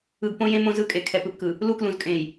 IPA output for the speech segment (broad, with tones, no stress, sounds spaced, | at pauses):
ɯ˨ ɡ p õ˦ j ẽ˦ m õ˦ z ɯ˦ kʼ e˨ kʰ ɛ˨ p ɯ˨ p k ɯ˨ | l u˦ k l ũ˨ z kʼ ẽ˨ j